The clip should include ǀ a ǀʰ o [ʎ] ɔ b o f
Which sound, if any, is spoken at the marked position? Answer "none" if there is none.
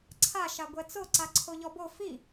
ʎ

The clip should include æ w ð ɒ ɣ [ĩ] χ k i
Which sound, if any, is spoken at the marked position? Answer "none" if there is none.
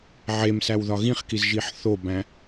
ĩ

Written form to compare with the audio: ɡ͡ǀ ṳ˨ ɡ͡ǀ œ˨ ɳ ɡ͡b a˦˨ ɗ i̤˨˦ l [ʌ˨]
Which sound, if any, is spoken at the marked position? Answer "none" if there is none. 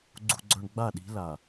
a˨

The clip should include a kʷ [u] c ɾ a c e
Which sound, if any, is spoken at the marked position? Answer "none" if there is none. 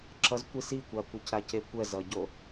ɯ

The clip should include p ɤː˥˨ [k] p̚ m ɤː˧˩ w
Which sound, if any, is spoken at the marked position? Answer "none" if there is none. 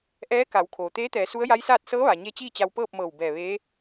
none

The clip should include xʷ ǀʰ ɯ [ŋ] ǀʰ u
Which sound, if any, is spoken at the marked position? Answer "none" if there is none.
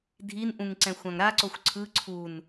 none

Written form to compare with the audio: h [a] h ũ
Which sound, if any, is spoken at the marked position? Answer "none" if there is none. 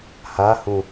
a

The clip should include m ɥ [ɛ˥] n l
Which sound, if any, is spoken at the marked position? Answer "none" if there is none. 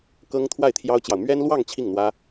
ɛ˥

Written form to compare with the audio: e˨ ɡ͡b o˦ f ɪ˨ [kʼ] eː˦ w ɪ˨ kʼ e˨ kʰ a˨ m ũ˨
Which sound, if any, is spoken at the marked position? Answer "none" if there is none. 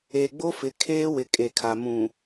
kʰ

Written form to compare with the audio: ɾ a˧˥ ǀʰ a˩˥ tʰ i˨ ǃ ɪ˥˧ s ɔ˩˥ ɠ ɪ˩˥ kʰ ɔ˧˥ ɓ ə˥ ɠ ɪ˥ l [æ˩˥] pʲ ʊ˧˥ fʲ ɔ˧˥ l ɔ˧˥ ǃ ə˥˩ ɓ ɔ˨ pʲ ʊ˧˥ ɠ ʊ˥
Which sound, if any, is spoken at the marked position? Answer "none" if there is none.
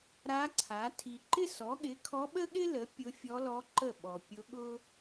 ə˩˥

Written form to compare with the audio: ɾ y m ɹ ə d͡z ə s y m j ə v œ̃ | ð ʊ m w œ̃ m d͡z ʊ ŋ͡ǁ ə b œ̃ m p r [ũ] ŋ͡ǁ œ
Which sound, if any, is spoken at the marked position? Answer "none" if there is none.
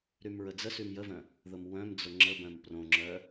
õ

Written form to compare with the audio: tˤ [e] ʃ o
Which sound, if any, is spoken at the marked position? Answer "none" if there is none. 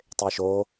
e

